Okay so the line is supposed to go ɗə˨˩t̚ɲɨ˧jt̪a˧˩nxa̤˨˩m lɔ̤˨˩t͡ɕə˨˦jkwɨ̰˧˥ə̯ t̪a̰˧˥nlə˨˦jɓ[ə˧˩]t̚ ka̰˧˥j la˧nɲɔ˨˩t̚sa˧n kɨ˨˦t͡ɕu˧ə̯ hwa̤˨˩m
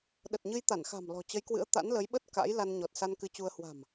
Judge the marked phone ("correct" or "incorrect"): incorrect